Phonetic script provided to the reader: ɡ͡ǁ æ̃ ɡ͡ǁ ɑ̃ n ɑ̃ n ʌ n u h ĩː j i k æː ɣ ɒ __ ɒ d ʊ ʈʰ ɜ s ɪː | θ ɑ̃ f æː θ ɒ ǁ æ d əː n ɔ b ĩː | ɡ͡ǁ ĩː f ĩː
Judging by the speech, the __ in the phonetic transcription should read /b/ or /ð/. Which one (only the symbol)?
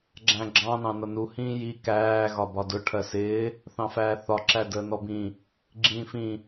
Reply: b